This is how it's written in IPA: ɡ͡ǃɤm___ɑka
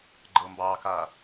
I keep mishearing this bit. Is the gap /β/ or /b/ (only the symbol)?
b